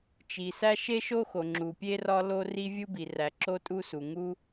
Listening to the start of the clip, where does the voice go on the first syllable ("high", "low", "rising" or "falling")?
low